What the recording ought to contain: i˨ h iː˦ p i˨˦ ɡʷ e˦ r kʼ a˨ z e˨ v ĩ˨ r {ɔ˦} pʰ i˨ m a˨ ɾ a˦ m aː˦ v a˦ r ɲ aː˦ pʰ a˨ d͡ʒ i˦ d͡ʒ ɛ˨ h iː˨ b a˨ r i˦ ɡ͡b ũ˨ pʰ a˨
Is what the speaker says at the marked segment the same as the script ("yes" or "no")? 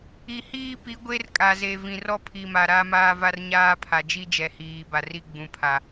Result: yes